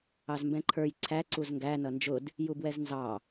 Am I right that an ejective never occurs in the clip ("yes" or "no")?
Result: yes